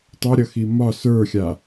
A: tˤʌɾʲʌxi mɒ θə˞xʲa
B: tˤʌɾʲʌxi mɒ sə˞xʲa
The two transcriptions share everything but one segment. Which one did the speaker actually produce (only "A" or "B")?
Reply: B